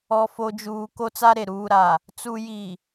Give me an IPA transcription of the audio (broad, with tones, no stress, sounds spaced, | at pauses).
ɔ˨ f o˨ d͡ʒ uː˨ k o˦ t͡s a˦ ɾ e˨ ɾ uː˨ ɾ a˨ | t͡s u˨ j i˨